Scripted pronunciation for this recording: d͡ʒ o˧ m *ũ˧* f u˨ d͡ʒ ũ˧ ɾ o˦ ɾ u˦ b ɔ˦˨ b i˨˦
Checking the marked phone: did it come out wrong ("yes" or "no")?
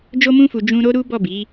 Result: no